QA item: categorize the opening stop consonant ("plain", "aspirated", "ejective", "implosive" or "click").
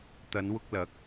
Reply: plain